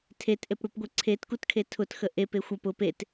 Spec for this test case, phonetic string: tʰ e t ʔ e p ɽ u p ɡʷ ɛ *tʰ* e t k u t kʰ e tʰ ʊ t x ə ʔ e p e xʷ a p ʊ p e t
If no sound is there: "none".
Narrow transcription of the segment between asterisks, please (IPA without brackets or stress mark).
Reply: ǀʰ